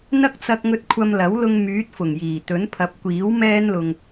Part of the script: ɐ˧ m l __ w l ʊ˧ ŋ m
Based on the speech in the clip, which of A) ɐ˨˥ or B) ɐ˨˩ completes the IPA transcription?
A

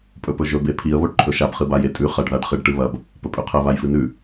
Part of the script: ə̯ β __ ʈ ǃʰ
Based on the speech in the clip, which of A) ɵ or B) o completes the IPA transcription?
B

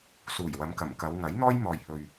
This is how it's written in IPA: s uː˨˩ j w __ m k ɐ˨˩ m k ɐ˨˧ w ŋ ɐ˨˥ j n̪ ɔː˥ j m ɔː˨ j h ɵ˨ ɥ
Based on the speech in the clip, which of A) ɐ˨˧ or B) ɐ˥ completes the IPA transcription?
A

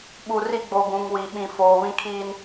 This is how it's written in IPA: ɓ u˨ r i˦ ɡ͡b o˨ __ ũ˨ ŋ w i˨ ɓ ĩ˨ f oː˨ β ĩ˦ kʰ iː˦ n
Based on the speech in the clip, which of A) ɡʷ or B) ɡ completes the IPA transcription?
B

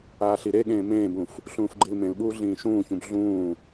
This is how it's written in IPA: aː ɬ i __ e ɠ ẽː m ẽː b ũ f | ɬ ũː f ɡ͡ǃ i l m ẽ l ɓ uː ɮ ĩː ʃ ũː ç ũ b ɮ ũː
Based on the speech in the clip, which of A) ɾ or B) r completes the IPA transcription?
A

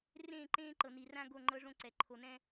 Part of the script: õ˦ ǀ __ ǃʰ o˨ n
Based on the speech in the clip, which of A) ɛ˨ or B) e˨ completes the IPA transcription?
A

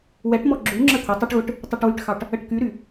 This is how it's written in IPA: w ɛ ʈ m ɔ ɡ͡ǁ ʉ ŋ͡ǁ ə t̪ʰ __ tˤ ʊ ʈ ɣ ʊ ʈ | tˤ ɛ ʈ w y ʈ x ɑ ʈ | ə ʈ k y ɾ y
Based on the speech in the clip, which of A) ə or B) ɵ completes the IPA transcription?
A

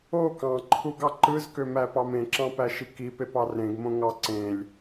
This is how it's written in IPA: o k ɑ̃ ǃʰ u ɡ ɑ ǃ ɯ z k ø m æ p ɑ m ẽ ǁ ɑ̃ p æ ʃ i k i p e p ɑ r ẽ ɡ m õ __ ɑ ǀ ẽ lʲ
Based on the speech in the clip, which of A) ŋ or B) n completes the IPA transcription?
A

